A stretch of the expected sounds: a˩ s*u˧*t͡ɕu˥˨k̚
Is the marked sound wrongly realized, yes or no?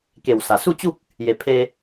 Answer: yes